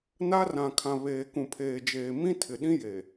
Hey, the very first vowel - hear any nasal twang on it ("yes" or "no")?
no